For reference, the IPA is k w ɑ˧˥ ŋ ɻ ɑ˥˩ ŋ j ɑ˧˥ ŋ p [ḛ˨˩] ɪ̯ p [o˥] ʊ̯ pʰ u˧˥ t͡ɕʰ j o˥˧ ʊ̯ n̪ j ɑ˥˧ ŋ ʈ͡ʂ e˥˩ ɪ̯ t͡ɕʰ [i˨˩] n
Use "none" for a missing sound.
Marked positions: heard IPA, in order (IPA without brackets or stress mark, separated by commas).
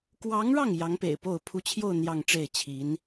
ḛ˨˩, o˥˩, i˧˥